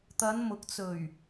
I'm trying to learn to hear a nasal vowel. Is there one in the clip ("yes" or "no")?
no